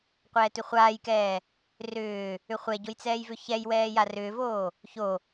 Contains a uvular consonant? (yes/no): yes